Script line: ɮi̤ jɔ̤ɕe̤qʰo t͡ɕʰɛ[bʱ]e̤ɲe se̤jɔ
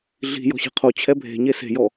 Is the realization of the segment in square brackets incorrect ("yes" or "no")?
no